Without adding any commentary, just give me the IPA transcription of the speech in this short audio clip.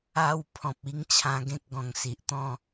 a˧wpʰɔ̃˨p̚i˧ŋ t͡ɕʰã˧ɡẽ˦k̚ ɡɔ̃˨˩ŋsi˨ʔt̪ɔ̃˥˧

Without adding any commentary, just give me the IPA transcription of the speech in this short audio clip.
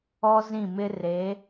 ɔ˦zĩ˦˨mɪ˦ re˨˦

